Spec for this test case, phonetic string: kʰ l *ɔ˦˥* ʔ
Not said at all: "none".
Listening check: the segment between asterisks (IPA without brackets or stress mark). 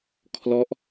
ɔ˦˥